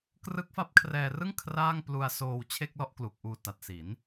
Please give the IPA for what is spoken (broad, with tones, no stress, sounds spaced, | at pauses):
k r ɯ˦˥ k̚ f a˦˥ p̚ kʰ r ɛː˧ r ɯ˥˩ ŋ kʰ r aː˥˩ ŋ p l u˧ a̯ s oː˧ w t͡ɕʰ e˥˩ k̚ l ɔ˥˩ ʔ k l u˨˩ k̚ ʔ uː˧ t a˨˩ t̚ s i˩˦ n